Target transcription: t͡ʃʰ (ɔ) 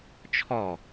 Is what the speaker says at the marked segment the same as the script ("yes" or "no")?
yes